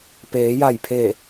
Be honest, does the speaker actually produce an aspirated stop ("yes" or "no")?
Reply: yes